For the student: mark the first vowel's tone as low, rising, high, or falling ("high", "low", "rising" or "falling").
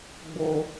low